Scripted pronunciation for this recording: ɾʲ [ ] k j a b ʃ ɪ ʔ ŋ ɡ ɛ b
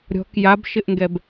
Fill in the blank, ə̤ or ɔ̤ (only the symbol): ɔ̤